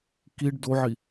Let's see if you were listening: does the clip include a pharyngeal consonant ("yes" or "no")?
yes